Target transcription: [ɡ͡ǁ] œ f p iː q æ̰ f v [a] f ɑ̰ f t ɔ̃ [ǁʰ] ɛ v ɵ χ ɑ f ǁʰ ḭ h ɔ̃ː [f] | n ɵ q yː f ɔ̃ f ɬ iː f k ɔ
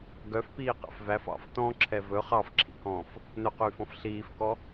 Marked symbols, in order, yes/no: no, no, yes, yes

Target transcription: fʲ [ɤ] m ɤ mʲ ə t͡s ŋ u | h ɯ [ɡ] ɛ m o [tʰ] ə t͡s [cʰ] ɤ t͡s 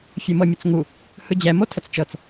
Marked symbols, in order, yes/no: no, no, yes, no

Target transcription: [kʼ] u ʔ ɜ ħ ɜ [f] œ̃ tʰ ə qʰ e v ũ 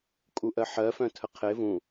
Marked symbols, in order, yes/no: yes, yes

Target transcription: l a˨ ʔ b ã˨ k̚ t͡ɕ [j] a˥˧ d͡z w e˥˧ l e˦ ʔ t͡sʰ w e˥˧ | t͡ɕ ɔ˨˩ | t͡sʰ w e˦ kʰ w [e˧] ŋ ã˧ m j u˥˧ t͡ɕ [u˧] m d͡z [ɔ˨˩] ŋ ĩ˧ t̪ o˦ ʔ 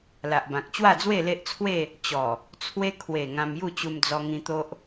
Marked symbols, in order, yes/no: no, no, yes, no

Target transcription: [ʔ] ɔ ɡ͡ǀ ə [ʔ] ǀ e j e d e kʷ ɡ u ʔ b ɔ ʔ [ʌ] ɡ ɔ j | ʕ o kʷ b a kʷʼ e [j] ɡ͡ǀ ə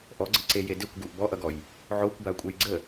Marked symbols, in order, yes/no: yes, no, yes, yes

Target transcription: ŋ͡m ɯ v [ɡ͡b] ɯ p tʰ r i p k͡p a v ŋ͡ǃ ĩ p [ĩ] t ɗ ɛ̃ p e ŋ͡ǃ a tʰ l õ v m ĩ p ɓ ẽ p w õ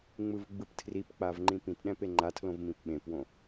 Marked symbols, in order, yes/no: yes, yes

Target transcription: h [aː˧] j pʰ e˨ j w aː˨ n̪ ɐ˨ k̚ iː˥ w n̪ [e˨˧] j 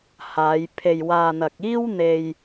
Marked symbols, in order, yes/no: no, no

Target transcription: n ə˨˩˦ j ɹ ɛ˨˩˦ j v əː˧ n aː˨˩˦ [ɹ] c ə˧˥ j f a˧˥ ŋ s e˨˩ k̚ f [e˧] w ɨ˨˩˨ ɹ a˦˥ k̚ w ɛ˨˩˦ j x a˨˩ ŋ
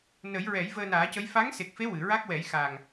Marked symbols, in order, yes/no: no, no

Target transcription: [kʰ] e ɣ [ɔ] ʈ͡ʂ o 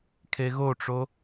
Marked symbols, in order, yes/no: yes, no

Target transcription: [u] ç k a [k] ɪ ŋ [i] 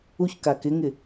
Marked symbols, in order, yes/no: yes, yes, no

